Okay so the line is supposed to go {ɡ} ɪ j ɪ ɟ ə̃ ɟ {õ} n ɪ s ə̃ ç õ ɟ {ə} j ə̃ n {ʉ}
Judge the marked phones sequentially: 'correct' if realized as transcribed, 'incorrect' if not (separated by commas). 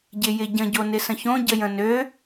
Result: incorrect, incorrect, correct, incorrect